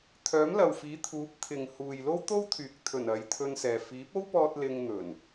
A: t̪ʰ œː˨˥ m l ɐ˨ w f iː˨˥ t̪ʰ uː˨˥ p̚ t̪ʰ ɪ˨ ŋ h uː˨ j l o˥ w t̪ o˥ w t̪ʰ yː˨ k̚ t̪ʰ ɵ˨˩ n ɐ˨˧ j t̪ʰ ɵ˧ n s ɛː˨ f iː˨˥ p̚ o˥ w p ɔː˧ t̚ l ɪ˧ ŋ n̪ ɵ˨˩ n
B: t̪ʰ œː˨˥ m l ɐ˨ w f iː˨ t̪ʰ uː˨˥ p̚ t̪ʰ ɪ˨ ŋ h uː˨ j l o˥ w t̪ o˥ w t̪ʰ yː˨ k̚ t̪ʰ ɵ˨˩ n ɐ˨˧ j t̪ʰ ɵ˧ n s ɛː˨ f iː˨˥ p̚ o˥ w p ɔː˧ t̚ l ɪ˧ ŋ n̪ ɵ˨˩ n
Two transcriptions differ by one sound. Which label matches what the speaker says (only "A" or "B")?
A